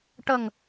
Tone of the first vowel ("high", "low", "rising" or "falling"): low